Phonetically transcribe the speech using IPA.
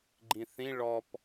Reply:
ɡ͡ǃĩθĩ ɭɔp

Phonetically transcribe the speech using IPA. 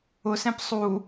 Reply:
ʊsɛ̃p sˤu

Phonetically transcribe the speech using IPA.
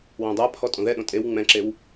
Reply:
wõdˤapʰɔ tʼõðɛɗõ tʼew ŋ͡mɛ̃ǁew

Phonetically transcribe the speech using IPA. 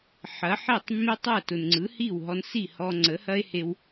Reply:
ħɐ˩˥ħe˥˩tˤmːe˥ tˤɐ˥˩tʊ˩n ŋ͡ǀɯ˩˥hi˥˩wɦɔ˧n si˥˩hɔ˧ ŋ͡ǀə˩˥hɐ˥e̯he˧w

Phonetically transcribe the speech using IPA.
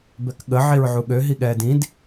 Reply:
bɛkɠə ʕiɹʕuɠø ɦiɠɛːdĩd

